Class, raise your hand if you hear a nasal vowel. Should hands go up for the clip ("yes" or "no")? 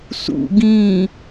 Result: yes